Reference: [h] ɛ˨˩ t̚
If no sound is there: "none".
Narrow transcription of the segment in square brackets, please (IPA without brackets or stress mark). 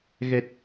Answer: ɣ